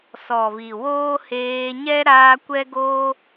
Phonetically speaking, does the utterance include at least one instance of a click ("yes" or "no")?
no